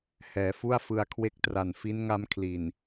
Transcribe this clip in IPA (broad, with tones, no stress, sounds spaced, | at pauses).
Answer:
h ɛː˩˦ f u˥˩ a̯ f ɯ˧ a̯ kʰ w e˦˥ k̚ t r a˨˩ n f i˦˥ n ŋ a˦˥ m kʰ l i˨˩ n